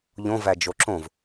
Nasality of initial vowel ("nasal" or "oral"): nasal